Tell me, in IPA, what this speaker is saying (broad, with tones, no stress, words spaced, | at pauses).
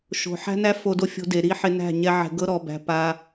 ʃo̤˨ħæ̤˦næ˦ fo˧do˧fʲo̤˧ de˨ɾi˦ħɪ˧næ̤˦˨ ɲɛ˧ ʕɛ̤˨ɡɤ˧ɾɔ˨bæ̤˨ pa˧